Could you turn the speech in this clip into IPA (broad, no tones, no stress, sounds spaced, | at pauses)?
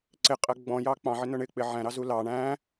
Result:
ǀ ɪ qʼ ɜ ɡ͡b ɔ̃ j ɑ k͡p ɑ̃ ʕ ɪ n ʊ ɳ ɪ k͡p ɪ ʕ æ̃ ɾ ɑ z u l ɑ ɳ æ̃